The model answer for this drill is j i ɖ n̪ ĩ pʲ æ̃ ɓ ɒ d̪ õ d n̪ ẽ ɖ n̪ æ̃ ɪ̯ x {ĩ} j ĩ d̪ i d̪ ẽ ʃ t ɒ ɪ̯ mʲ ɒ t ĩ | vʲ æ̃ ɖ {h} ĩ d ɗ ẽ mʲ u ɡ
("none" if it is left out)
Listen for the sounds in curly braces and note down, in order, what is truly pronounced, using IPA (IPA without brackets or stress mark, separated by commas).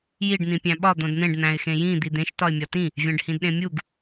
ẽ, h